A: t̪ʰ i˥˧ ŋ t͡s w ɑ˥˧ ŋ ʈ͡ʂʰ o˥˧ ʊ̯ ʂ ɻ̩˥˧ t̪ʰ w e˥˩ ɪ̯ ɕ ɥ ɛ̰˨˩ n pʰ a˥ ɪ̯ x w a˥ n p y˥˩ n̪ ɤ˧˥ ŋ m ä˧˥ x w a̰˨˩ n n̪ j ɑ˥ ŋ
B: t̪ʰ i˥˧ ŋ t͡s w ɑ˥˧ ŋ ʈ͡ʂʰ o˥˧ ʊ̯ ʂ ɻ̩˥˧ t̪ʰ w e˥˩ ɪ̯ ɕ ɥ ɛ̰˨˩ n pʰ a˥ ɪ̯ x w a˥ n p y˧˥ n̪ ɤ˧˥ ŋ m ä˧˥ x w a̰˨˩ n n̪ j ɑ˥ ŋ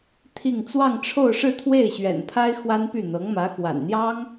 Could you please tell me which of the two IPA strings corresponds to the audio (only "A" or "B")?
A